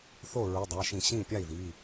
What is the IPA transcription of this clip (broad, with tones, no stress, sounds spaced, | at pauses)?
θ o˥˩ ɹ u˩˧˩ dˤ a˩˧˩ ʃ ĩ˧˩˧ ɕ ĩ˥˩ pʲ a˥˩ i̯ ð i˩˧˩